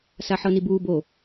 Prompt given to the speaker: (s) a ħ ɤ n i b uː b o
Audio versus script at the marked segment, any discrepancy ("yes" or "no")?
no